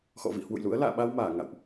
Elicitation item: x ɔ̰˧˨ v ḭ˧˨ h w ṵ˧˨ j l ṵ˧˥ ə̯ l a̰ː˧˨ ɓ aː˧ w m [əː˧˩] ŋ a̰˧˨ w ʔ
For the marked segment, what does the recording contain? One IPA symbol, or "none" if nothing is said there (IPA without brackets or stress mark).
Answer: aː˧˩